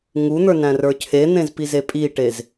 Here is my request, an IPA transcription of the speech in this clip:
ŋ u n̪ ə˞ n æ̃ r ə˞ cʰ e n̪ ẽ z p i z e pʼ i ʈ e z

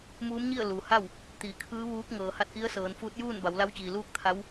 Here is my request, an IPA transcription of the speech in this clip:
m uː˧˥ m ɲ i˥˨ ə̯ l uː˩ h a˥˨ w | t̪ iː˩˧ kʰ ɯː˧˥ ʋ uː˧˥ k̚ ŋ ɤː˩ h a˧ t̚ ʔ i˧˥ ə̯ s ɤː˩˧ n f uː˧˥ t̚ j uː˥˨ n b a˩˧ w l a˧˥ w t͡ɕ iː˩ l uː˥˨ k̚ t̪ʰ a˧˥ w

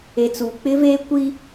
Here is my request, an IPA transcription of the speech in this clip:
e˨ t͡s uː˨ k͡p ɪ˦ v eː˦ kʷ i˦

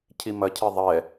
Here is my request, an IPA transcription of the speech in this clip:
cʰ i m ɐ cʰ i ðˤ ɛ

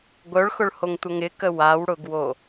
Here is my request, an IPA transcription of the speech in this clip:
ɡʷ œ ɭ x ʊ ɭ h o ŋ tʷ ə ŋ ɪ k ə w a w ɽ ʊ ɡ w o

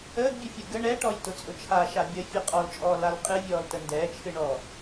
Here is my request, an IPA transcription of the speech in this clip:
əː ɡ bʲ ə fʲ ʊ ɡ ə ɳ ɛ ʈ ɔ j t ʊ t͡sʼ ʊ t͡ʃʰ a ʃ a bʲ ə fʲ ə qʼ ɔ l t͡ʃʼ ɔː l a l qʼ ɨ vʲ ɔː l t ə n d ɛː t͡ʃʰ ɨ ɳ ɔː

